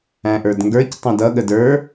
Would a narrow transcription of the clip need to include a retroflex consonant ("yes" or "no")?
no